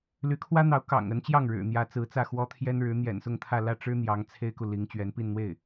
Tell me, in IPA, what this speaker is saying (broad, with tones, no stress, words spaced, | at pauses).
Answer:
ly˧˥kʰwä˥n̪ɑ˧˥ʊ̯ kɑ̰˨˩ŋə˧˥n t͡ɕjɑ˥˩ŋɻɻ̩˨˩n̪jä˧˥ t͡sɹ̩˧˥t͡sä˥˩ xwɔ˥t̪ʰjɛ˥nɻɻ̩˧˥ n̪jɛ̰˨˩nsʊ˥˧ŋt̪ʰä˥˧ lä˥˩ʈ͡ʂɻ̩˥ n̪jɑ˧˥ŋ t͡sʰe˥ɪ̯ku˨li˧˥ŋ t͡ɕɥɛ˧˥npi˥˧n n̪we˥˩ɪ̯